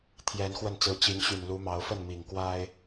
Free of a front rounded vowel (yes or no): no